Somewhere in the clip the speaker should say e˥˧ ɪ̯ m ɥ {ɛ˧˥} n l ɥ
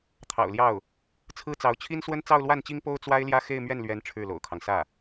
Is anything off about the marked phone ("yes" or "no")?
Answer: yes